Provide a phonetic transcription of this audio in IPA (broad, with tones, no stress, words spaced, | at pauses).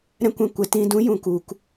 ɾɛ̃˦kʷɛ̃˧kʷɛ˨˦t ĩ˧dũ˨˦jũ˨ ku˨k